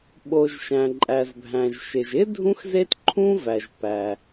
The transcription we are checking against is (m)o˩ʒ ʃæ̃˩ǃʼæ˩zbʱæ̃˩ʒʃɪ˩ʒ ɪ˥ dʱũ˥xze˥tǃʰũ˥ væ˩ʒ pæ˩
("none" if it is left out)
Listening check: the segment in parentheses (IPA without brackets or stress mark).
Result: ɓ